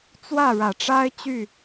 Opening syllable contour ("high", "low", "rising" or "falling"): falling